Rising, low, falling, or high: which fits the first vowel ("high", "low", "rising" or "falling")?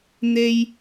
high